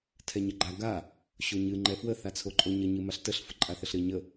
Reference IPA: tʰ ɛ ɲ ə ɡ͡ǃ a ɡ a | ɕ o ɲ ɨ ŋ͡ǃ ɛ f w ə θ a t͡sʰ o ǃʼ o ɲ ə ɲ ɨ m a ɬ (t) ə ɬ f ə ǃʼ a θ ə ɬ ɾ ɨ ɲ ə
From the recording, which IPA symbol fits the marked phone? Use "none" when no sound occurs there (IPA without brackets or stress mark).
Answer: t